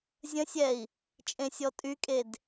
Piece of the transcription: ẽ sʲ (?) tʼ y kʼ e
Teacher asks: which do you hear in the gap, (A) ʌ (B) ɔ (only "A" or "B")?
B